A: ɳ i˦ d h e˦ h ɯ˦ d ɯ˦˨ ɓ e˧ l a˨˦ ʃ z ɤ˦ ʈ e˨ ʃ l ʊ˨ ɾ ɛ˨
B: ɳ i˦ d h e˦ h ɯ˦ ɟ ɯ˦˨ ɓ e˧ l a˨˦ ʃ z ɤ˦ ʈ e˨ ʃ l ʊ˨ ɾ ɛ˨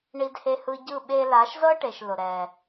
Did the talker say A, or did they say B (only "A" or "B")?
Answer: B